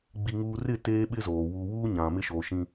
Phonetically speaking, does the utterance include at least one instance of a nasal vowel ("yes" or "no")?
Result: yes